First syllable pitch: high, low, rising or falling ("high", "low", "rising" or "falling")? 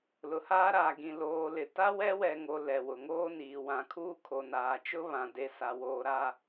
low